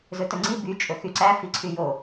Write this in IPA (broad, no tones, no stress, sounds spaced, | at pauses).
z ɵ t ɵ ŋ͡ǀ i b y t͡ʃʼ ɵ x y ǀ æ f i ǀʰ y j o